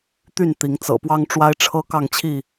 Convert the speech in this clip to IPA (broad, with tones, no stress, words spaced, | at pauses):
t̪y˥˨nt̪i˨˦ŋt͡sɤ̰˨˩pwɑ˦ŋ ʈ͡ʂwa˦ɪ̯ʈ͡ʂʰɤ˦ kɑ˥˨ŋt͡ɕʰi˥˨